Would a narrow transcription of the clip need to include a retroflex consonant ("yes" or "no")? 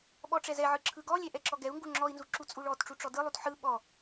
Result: yes